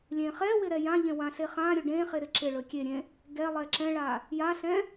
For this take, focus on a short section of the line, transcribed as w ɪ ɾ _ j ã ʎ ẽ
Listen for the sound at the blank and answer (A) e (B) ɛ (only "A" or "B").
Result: B